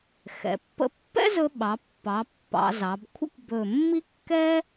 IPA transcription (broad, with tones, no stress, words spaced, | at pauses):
xɛ̰˩˧pːə̰˥ pːɛ̰˥zɵ˧ɓɑ˩˧pːɑ˩˧ pːɑ̰˩˧zɑ˩˧b kʷʰə̰˥kʷbɵ˧˩ mːi˥ kːɛ˥